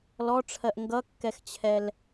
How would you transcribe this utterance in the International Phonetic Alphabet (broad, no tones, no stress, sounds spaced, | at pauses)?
l ɔ ʈ͡ʂʰ ɜ ʔ ŋ ɡ ʌ kː ɛ x t͡ɕʰ ɛ l